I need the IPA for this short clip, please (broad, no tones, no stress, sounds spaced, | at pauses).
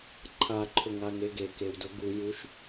ǃʰ a ǃʰ ʊ ŋ a ŋ e ɡ e k e w d ʊ ɡ u j u ʃ